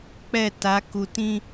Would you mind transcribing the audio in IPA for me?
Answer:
k͡pɛ˦˨ta˨˦ku˨tĩ˦

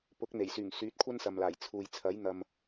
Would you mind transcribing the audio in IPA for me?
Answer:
pʊ˨˥k̚n̪e˨˩jsyː˨˩ŋ syː˨˥t̚kʷʰɐ˥nsɐ˨mlaː˨˩j t͡sʰuː˨j t͡sʰɐ˨˥jn̪ɐ˨m

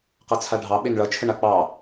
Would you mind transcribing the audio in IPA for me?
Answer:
qʌt͡sʰaɖʱɑ ɓenɭʌt͡ʃʰəɳa k͡pɑ

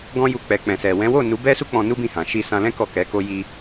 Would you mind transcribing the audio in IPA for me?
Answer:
ɡɔ̃˦ju˧ k͡pɛ˨k͡pɛ̃˨sɛ˨ wɛ̃˨˦wo˦˨nu˨˦ bɛ˦su˦k͡pɔ̃˧ nu˦bĩ˦˨hã˨ ʃi˧sã˧lɛ̃˦ kɔ˦˨kɛ˨˦ko˦ ji˧

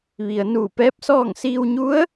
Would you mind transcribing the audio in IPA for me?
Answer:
ʋi˩ə̯ nuː˧˩pɛː˧˥p̚sɔː˥˨ŋ siː˧wɲu˧˥ə̯

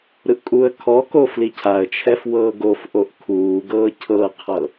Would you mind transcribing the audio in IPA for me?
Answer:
ɾɯʔkʼuə̯kʰɔko flicʰaə̯t͡ʃʰɛf wɤːɡofʔoʔ kʰuːɡɤː cʰɤqʰɤ

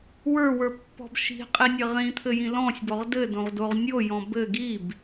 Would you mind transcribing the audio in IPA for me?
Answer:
wə˞wə˞pːɔ̤b ʃi̤qʼinʲɘ ʁĩt̪ʰɘjĩ lɔ̃sʲbɔʁ dɘdõʁdoʁ nʲojɔ̃ bɘ ɡib

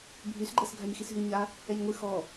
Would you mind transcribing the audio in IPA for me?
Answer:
bʱysɡ͡ǃɛs ɡʱaɲxisɦy ɲa | ɛɲŋʷɨ xɔ

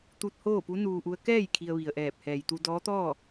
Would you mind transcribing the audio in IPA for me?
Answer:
t̪u˧t̚hoː˥˨pu˧˥ nuː˧ʔu˧˥ə̯ kɛː˥˨j kʰi˧ə̯ʋi˩ə̯ʔɛː˧˩p̚ hɛː˩jt̪u˧dɔː˧˥t̪ɔː˥˨

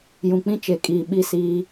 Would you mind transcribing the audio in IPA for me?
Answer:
jũ˨k͡pĩ˦t͡ʃe˨kʼiː˨ ɓi˦siː˦

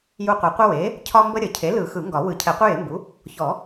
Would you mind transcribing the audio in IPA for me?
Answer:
ju˦qʷə˨˩˦ qʷə˦we˩˥ | cʰɒ˦mbə˦ɾʲə˨˩˦ cʰe˩˥lɯ˨˩˦ xɯ˨˩˦ŋɡɒ˨˩˦ wɯ˨˩˦ cʰɛ˨˩˦qʷɯ˦je˩˥mbu˩˥ | çɔ˨˩˦

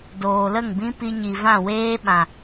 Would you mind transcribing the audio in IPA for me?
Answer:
doː˨lə˦˨ŋbĩ˦ pi˧ɲi˨vã˦˨ weː˦ɓã˨

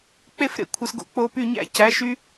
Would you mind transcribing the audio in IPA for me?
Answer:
k͡pe˦˨fɾḛ˧ kʷʰɯ˨sɡo̰˧ k͡po˧py˦˨ɲæ̰˦ cæ˨˦ʃy˦

